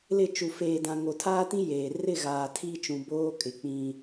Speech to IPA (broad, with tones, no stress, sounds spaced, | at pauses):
l ɪ˦˨ t͡ʃ u˨ f eː˨ d ã˨ ŋ o˨ tʰ aː˦ t ĩ˦ j eː˨ r ɪ˦˨ ɣ aː˨ tʰ i˦ t͡ʃ ũ˨ b oː˦ kʼ ɪ˨ k͡p ĩ˨